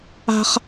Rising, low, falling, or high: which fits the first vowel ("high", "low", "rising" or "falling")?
high